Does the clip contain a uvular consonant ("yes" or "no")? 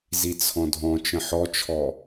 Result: no